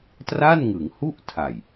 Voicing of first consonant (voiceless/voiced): voiceless